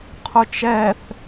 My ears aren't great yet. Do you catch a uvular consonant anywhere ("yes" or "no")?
yes